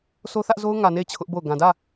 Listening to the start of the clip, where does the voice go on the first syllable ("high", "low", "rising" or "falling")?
high